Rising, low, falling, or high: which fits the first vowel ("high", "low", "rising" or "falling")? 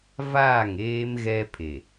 falling